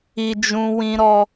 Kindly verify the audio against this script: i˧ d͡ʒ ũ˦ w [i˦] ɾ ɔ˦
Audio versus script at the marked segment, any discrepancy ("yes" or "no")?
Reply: yes